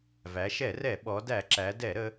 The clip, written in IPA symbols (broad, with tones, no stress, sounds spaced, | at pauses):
v æ˩˧ ʃ ɛ˧˩˧ r ɛ˧˩˧ ɓ ɔ˩˧ d æ˧˩˧ ǁ æ˩˧ d ɛ˧˩˧ ɾ ə˩˧